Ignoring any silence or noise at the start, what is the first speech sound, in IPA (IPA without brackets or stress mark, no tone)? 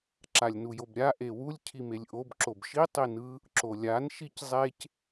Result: ǁ